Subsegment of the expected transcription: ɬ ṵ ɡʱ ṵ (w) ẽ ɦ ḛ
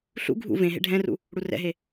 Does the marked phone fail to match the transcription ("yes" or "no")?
yes